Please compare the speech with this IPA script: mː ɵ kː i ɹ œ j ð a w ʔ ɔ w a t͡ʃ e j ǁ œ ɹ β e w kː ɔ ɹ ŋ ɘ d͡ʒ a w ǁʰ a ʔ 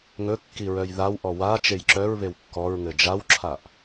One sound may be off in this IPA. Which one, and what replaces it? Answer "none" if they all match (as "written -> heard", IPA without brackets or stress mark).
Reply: mː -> ŋ